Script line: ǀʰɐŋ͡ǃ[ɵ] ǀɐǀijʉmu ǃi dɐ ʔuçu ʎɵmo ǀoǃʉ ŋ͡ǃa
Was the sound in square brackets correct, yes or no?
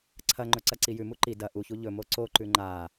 yes